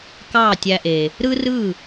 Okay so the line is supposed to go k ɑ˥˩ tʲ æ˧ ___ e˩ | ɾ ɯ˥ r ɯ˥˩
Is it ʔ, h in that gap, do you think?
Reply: ʔ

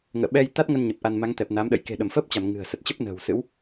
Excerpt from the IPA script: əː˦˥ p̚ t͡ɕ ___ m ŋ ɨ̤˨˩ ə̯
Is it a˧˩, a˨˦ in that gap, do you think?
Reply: a˧˩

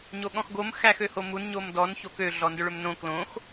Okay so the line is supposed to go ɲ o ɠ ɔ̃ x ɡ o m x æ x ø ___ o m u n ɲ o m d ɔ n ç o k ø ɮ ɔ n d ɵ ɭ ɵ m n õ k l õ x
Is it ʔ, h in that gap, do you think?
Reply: h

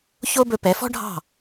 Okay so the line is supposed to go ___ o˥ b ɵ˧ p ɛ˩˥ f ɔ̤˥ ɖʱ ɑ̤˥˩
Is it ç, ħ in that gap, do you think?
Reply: ç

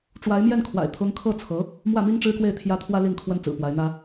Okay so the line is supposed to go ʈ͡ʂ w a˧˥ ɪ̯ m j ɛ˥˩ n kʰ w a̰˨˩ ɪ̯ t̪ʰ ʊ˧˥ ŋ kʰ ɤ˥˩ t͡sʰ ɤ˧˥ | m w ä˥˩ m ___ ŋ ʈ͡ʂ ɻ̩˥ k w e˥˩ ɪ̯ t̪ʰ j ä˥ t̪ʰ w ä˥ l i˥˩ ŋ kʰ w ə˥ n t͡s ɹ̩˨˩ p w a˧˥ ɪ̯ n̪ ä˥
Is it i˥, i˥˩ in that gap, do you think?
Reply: i˥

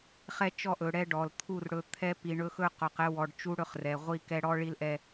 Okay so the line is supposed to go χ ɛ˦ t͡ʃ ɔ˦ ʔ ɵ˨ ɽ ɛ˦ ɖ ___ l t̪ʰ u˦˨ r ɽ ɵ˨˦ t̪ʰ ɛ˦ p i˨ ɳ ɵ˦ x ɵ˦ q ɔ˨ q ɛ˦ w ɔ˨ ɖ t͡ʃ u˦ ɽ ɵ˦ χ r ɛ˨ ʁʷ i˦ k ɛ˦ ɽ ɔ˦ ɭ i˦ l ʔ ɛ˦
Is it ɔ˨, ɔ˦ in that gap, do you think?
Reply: ɔ˨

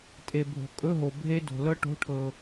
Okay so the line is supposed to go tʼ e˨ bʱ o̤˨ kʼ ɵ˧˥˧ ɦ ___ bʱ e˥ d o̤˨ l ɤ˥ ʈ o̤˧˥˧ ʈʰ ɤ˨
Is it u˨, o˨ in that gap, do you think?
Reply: o˨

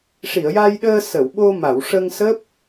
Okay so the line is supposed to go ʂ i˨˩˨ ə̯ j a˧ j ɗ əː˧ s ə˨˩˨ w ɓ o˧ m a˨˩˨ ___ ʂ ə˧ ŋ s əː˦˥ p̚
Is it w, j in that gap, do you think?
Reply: w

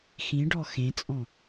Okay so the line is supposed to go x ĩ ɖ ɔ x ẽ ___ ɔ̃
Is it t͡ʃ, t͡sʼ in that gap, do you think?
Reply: t͡sʼ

